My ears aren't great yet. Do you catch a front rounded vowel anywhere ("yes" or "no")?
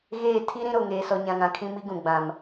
no